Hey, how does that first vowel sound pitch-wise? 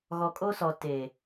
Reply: low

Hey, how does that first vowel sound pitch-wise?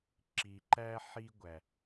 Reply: low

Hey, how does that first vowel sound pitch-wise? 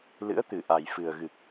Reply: rising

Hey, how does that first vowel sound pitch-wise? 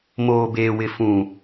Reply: low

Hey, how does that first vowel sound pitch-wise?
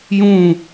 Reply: falling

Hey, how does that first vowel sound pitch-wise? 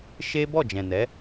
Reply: high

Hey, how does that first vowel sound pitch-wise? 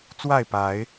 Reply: falling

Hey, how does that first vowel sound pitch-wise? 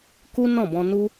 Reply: high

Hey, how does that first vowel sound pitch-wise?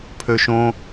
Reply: high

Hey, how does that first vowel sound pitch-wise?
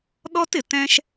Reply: high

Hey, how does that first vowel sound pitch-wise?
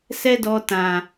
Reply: high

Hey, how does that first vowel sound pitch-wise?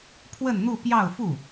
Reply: falling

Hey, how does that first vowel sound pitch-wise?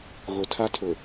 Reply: low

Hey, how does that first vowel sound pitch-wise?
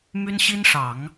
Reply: high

